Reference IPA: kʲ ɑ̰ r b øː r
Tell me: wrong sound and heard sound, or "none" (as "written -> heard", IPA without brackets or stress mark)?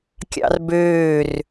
none